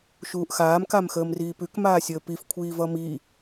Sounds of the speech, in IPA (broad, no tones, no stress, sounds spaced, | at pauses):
ʃ uː ʔ x aː m k a m x əː m r iː p ʉ k m aː sʲ əː p i f kʷʰ iː v ʌ m i